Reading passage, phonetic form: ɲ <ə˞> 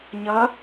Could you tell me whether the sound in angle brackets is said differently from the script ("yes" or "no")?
yes